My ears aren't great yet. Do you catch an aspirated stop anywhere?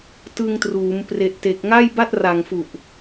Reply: no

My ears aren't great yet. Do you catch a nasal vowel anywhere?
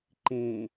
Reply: yes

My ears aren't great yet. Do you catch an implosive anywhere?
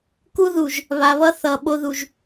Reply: yes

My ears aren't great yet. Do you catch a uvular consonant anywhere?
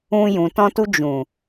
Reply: no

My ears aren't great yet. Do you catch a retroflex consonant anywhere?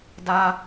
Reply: no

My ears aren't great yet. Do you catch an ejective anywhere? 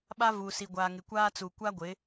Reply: no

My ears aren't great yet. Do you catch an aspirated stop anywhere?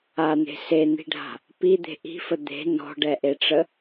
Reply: no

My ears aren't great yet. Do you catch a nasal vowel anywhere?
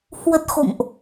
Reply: no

